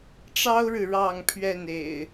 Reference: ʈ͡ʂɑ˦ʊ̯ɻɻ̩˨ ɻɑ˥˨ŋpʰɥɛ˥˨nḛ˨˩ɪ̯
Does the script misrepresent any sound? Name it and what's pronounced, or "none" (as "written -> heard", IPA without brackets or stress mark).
none